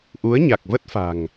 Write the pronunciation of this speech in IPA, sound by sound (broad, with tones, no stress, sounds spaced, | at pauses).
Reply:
ʔ u˨˦ ə̯ ɲ a˨˩ k̚ v ə˦˥ t̚ f a̤˨˩ ŋ